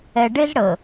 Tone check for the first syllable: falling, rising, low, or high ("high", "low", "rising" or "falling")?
low